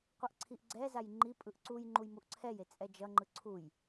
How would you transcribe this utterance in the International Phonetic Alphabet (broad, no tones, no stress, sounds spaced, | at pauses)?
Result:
qʷ ʌ ʔ ǀʰ i ʔ ɡ͡ǀ ɛ z a j ŋ͡ǃ i pʼ ɯ ʔ ǀ u j ŋ͡ǃ u j m u ʔ ǀʰ ɛ j e t͡sʼ ɛ d͡ʒ ʌ ŋ͡ǃ ɯ ǀʰ u j